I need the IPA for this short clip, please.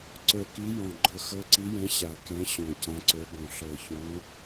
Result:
ǀ ə˞˨˩ k i˨˦ j ɔ̃˨˩ ɡ͡ǃ ɤ˨˩ x ɤ˨˦ ǀ i˨˦ j ɛ̃˨˦ ɕ a˨˩ k ɛ̃˨˦ ɕ ɔ̃˨˩ c ã˨˦ ǀ ə˞˨˦ ɡ ɔ̃˨˩ ɬ ɤ˨˩ ç ɔ̃˨˦

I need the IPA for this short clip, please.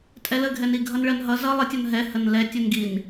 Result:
tʼ ɛ l ə ɡʱ ɛ n i ɡʱ ʌ n ɭ ɜ n ɦ ʌ z ʌ lˠ ə tʲ ɔ n ɦ ɛ h ə n l ɛ tʲ u n ɡ i n

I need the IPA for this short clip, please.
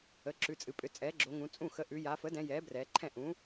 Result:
ə˩˧˩ ǁ ʉ˩˧˩ t͡sʼ ɨ˩˧ pʼ ʏ˩˥ t͡sʼ ɛː˩˥ ɡ͡ǁ o˩˧ ŋ ũ˩˧ t͡sʼ ũ˥˩ x ə˩˥ ʔ ʉ˩˧ j a˩˧ f ə˩˥ d ɛ̃˩˧ j ɛː˩˥ b r ɛː˩˧ ǃʰ ɛ̃˥˩ ʔ ũ˩˥

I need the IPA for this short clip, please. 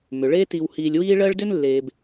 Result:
m ʏ˩ ɭ eː˦ t i˨ w h iː˨ lʲ w iː˦ ɭ ɜ˦ ɭ d ʏ˥ n lː eː˩ b

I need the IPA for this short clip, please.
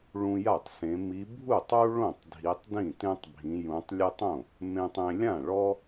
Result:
ɭ ũ˦ j a˥˩ tˤ s ẽ˨˦ m i˨˦ bʱ u˥˩ tˤ u˦ ɭ õ˥˩ tˤ dʱ i˨˦ tˤ d ĩ˥˩ t ẽ˦ tˤ bʱ ĩ˨˦ j ũ˨˦ tˤ lʲ ɨ˦ tˤ õ˥˩ | m ẽ˦ tˤ ẽ˦ lʲ ã˥˩ ɭ ɔ˦

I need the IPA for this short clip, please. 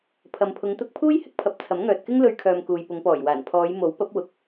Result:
pʰ ɐ˨ m pʰ ʊ˨˧ ŋ t̪ ʊ˧ k̚ pʰ uː˥ j h ɪ˥ k̚ pʰ ɐ˨˥ p̚ t͡sʰ ɐ˨˥ m ŋ œː˨ t̚ k ɪ˥ ŋ l ɵ˧ ɥ kʰ œː˨ m k uː˨ j p ʊ˨˧ ŋ p ɔː˨˩ j w aː˨˩ n pʰ ɔː˨˧ j m o˨˥ w p ɐ˨˥ p̚ w ʊ˨˥ k̚

